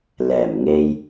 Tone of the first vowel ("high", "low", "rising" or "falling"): low